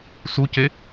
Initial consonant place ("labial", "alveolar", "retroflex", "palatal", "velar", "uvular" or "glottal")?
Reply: alveolar